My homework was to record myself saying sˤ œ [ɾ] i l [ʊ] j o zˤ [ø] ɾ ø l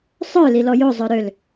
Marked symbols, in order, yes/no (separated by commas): no, no, no